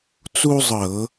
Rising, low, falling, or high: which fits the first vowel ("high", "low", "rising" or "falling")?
high